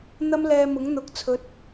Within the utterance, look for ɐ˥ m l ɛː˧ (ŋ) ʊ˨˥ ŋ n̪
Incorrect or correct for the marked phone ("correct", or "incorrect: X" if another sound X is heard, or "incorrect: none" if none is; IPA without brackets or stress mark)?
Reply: incorrect: m